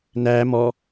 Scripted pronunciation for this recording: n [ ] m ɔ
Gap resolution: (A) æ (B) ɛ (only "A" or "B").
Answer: A